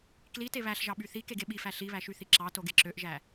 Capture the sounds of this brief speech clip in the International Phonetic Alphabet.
klite βæɬʒɑɓy θikeɡe ɓifæ ɬiβæʃyθi ǁɑtoɡe ǁøʔʒæ

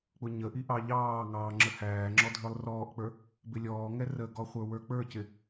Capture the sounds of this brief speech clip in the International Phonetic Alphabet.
k͡pʊɲəʔi ʔɑʎɑːŋɑː ŋ͡ǁəhæːŋ͡ǁɔ dʱə˞lˠrɔːʔk͡pə˞ | bɪlʲɔːŋɛ rəɡɔ χʷə˞wə˞k͡pə˞cɪ

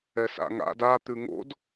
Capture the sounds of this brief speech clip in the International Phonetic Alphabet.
ɛsa̰ŋa̰d a t̪ʉŋo̰d

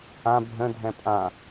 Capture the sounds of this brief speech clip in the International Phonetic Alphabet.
ã bʱə̃ dʱɛ̃pʼã

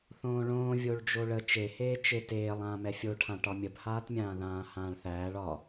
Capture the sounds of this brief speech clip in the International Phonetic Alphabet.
θõːɭõː vʲoɭd͡ʒoɭə t͡ʃeheː t͡ʃeteːlˠ ãːmɛfʲoʈʰã ʈɒmʲəbhaːtmʲãː ðãːhãːɭθæːɭ ɒ

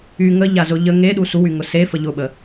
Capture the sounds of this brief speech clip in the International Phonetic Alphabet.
y ŋəʎazʊ ʎə ŋeɗu suwyŋʊ sefə ʎʊɓə

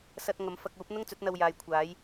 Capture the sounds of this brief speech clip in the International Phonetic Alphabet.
sɐ˧t̚ŋɐ˨˧m fɐ˧k̚uː˨˥p̚ n̪ʊ˥ŋt͡sɵ˨˥t̚n̪ɐ˧wjaː˨˧j kʷʰaː˨˥j

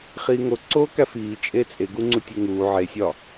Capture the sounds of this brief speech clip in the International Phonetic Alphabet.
χiːŋo ǀoːkæfiː t͡ʃʼet͡sʼe ɡuŋ͡ǀutʲeŋuː ʕe sʲɒ

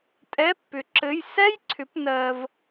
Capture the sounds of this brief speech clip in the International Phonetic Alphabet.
tʼɛ˧˥˧pːʏ˨˥ ǁɘ˧˥˧j sɛ˥jǀʰʏ˨˥p nɜ˧v

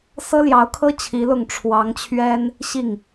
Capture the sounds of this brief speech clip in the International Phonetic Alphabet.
sɤ˥ljɑ˧˥ʊ̯kʰɤ˥ t͡ɕʰi˧˥lʊ˥˩ŋ ʈ͡ʂʰwɑ˧˥ŋt͡ɕʰɥɛ˥n | ɕi˥˩ŋ

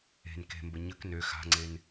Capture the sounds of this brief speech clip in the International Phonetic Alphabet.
e̤n ke̤mbə ɲək nø xa̤ŋ͡ǀen

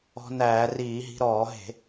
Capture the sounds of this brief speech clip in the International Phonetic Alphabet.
ɔ̤˧næː˧˩˧riː˧˩˧ɦi̤˧ ɾɔː˧˩˧ɦe̤˧˩˧

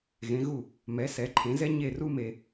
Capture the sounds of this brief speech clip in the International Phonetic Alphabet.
ɣẽ˩˥ɣu˥˩ | mɛ˩˥ sɛ˩˥ǃʰẽ˩˥zɛ˥ ɲe˥˩ru˥me˧

